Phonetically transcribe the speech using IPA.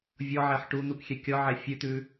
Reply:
vʲɔʕɛħ ʈun̪ukxʲɛ kʲɔʕɛ fʲʉt̪ʉ

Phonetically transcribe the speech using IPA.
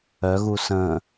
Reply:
œɣu sə̃

